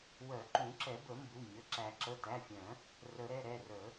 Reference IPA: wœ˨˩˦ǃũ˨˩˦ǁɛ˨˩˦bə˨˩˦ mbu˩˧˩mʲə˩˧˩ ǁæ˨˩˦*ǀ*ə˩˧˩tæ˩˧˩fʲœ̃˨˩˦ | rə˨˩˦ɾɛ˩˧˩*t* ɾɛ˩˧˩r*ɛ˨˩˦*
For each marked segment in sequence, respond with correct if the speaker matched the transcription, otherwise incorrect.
incorrect, incorrect, incorrect

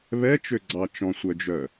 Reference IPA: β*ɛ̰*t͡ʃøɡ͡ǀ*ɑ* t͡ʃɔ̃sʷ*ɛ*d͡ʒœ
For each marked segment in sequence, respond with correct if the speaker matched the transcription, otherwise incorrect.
incorrect, correct, incorrect

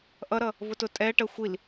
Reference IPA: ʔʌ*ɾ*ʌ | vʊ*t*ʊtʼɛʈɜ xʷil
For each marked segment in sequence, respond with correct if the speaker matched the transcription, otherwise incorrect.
correct, correct

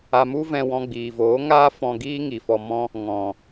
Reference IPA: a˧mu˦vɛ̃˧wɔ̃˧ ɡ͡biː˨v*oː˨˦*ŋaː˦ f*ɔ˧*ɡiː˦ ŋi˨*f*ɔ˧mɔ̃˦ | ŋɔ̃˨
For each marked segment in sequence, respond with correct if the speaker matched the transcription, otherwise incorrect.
correct, incorrect, correct

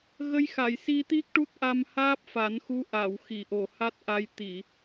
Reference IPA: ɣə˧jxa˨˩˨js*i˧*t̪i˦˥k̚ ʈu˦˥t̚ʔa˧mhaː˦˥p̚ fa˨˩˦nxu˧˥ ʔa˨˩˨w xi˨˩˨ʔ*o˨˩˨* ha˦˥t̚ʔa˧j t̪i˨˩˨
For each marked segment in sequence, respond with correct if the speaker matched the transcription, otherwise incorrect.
correct, correct

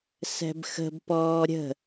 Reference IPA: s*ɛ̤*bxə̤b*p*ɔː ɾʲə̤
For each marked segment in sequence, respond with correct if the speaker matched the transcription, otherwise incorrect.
correct, correct

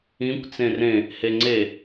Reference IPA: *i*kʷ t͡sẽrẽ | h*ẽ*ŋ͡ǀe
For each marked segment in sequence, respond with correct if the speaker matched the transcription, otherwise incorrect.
incorrect, incorrect

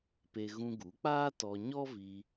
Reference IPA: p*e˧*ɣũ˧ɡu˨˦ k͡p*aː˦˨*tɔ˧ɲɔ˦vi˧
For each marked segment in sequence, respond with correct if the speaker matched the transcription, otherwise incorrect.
correct, incorrect

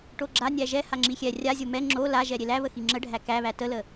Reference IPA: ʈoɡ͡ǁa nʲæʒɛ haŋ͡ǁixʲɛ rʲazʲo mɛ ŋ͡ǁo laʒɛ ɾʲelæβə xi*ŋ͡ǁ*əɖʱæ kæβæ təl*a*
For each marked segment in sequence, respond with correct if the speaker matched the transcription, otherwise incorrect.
correct, incorrect

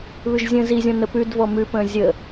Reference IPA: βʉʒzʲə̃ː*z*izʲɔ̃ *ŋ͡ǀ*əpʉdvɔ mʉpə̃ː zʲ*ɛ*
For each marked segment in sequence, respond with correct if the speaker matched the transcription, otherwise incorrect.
correct, incorrect, incorrect

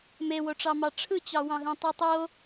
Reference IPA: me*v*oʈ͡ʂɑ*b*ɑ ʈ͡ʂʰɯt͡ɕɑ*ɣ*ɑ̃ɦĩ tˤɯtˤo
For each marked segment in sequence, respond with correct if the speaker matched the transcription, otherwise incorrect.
incorrect, incorrect, incorrect

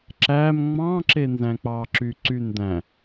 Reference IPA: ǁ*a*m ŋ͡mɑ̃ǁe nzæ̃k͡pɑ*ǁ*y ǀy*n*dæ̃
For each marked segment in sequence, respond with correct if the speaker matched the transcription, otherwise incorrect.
incorrect, correct, correct

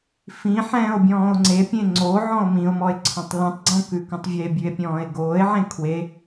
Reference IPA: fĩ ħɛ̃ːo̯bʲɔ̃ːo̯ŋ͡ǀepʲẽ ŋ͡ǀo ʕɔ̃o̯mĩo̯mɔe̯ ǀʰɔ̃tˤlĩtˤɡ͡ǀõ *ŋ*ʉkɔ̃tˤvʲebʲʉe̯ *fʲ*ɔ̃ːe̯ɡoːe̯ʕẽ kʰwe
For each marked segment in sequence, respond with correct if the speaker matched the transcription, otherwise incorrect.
incorrect, incorrect

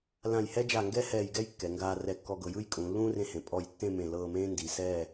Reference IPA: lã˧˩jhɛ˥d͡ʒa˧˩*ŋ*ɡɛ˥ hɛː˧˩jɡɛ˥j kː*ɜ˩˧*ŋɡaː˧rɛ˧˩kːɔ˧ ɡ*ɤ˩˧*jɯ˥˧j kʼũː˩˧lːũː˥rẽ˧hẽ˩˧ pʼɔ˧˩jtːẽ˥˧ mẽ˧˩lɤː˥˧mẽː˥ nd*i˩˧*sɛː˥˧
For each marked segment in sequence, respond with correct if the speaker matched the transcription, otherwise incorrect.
correct, incorrect, correct, correct

